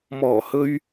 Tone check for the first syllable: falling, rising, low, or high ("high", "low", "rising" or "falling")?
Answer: low